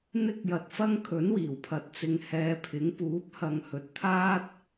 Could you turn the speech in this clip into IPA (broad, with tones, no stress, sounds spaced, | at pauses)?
n̪ ɪ˥ k̚ j ɐ˧ t̚ f ɐ˥ ŋ kʰ ɵ˨˥ n w iː˨˩ w pʰ ɐ˨˥ t̚ t͡s ɪ˨˧ ŋ h ɛː˨˧ pʰ ɪ˨˥ ŋ p uː˨˥ p̚ h ɐ˨ ŋ h ɵ˨ t̚ t̪ʰ aː˥ t̚